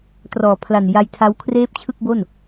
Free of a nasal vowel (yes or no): yes